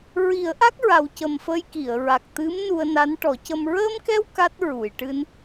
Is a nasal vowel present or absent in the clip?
absent